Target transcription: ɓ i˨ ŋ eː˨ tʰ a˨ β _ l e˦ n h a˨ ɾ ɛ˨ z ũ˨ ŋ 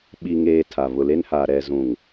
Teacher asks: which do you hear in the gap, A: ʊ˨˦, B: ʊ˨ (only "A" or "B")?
B